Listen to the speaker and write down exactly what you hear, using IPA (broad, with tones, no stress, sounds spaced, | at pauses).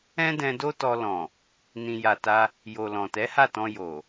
ɛ̃˦ d ɛ̃˧ d o˦ t ɔ˧ l ɔ̃˨ | n ĩ˨ j a˨ t a˧ | j o˨ l ɔ̃˨ t ɛ˨˦ h a˦˨ t ɔ̃˧ j o˨